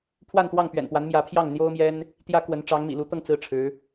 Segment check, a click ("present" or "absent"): absent